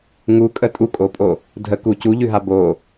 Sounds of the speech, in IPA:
ŋukʼə tʼukʼopʼo | dʱə ku cuʎʉɦa bo

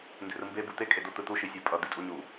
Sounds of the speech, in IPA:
nde̤rɯmbe but̪e kʼedot̪ɯt̪u ʃisʲapʼʌ d̪itʼuɲu

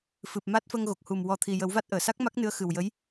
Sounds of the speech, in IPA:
fɨ˨˩p̚ma˦˥t̚fə˧ŋ ɣo˨˩k̚hu˨˩m wɔ˨˩t̪ʰi˨˩jə˨˩˦wva˦˥t̚ ʔəː˨˩˨sa˦˥k̚ma˦˥k̚nɨ˧˥ə̯ xɨ˨˩wjə˧˥j

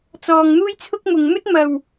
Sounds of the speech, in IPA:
t͡sɔː˨ŋn̪uː˥jt͡sʰʊ˥k̚mʊ˨ŋ mɵ˥t̚ mɐ˨w

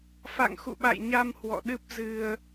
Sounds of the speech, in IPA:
fa̰˧˨ŋxṵ˧˨ɓa̰˧˨jɲa˧m hwɔ̰˧˨ɗɨ˦˥p̚ zɨ˧ə̯

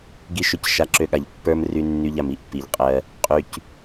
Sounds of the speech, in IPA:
ɡi˦ʃø˦˨c ʃa˧ǁø˧ɠa˨ʎ pːə˞˦mry˧nːy˧ʎ a˨mi˨ʔpːi˨ʎ qʼɜ˧ | qʼy˧c

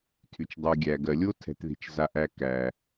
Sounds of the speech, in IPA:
tʰy˨t͡ʃdˤy˨ ɡʲæ˨ɡɜ˨lʲo˥ tʰɛ̤˨tði̤˨t͡ʃza˨ʔæ˨ kæ˩

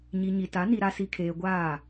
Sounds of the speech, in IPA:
ɲi˨ɲi˨ta˨˦ ni˨ɾa˨si˨kʰeː˨ ɡʷaː˦˨

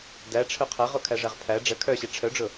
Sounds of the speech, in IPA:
dæʈ͡ʂʰœ qʰæʁokʰæʐæʁ pʰæ ɖ͡ʐə kʰœɕe ʈ͡ʂʰœɖ͡ʐʊ

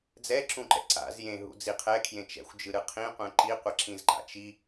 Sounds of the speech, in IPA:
d͡zɛǁũǃɛ̰ ǀa̰z jẽɦṵ d͡ziqʰɛkʰjẽ t͡ʃɛ̰xʷd͡ʒɯɾɯ qʰĩ qʷẽǃi qʷʌǁĩzǃa̰t͡ʃi

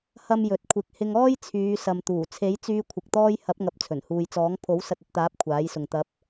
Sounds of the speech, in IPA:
hɐ˧m jɵ˨t̚kʷʰɪ˨˥k̚ hɪ˧ŋɔː˥j t͡sʰyː˨˧sɐ˨m t̪uː˨˩t͡sʰe˨˥jt͡syː˧ kʷʰɪ˨k̚t̪ɔː˥j hɐ˨˥p̚ŋɐ˨p̚ t͡sʰɵ˨˩nhuː˨jt͡sɔː˨˥ŋ pʰo˨˥w sɐ˧t̚ɐ˧t̚t̪aː˨˥p̚ kʷʰaː˨˥jsʊ˨ŋ t̪ɐ˨˥p̚

